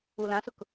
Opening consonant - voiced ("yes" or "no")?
yes